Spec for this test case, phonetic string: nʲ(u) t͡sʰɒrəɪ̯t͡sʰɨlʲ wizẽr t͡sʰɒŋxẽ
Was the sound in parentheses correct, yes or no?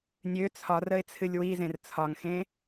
no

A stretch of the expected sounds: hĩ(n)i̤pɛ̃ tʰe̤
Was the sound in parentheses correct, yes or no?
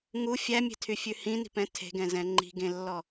yes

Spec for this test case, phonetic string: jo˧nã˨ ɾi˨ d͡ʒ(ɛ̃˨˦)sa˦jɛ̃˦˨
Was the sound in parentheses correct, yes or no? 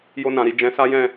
yes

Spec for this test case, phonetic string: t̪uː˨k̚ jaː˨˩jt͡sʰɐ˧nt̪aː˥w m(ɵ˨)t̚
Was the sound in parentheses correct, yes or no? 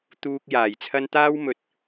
no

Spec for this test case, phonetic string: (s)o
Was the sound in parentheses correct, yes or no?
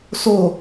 yes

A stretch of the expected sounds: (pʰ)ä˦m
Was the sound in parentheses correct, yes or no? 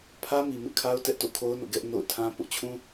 yes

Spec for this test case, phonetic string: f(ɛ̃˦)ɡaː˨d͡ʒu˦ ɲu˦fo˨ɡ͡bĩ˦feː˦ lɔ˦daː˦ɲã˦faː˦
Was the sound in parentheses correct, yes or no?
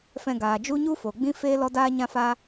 no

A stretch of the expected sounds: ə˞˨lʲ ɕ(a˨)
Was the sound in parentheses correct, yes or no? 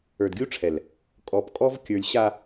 yes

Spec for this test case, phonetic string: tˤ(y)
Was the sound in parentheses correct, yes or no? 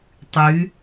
yes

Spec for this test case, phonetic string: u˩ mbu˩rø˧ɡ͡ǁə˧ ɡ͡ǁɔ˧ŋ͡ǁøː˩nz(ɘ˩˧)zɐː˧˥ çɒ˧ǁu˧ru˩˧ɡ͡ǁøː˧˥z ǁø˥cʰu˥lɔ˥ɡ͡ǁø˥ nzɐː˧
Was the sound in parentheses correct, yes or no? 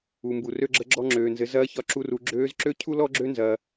yes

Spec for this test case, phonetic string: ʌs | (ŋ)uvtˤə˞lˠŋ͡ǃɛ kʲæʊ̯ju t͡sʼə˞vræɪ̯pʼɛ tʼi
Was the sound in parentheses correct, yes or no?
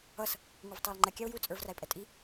yes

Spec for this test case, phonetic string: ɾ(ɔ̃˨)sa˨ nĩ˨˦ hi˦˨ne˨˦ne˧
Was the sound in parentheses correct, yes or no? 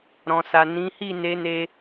yes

